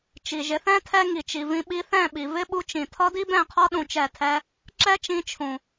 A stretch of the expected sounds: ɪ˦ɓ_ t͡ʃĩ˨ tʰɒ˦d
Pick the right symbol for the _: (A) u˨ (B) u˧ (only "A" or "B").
B